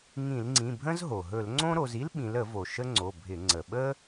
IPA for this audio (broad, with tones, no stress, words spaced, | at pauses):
ŋĩ˧˩˧lŋ͡ǀĩ˩˧˩ bʱə̃˥zɦo˩ ɦɵ˧˩˧lŋ͡ǀõ˥ɾo˩˧z i˥lɓĩ˩˧lə˧˩˧vo˩ ʃə˥ŋ͡ǀo˩˧˩bʱɪ˧˩˧ ŋ͡ǀə˩ɓə˥